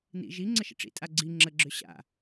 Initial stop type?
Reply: click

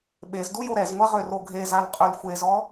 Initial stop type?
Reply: implosive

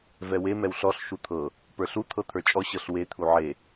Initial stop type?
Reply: aspirated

